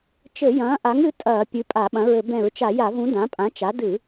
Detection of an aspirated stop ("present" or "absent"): absent